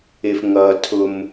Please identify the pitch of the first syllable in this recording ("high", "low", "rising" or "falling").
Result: low